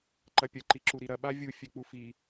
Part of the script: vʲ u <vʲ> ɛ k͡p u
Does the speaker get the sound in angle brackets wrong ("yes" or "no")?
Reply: yes